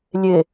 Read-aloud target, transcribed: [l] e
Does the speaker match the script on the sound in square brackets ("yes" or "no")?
no